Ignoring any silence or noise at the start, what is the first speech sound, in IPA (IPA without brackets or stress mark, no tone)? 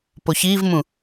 p